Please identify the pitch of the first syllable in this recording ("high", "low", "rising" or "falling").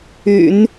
low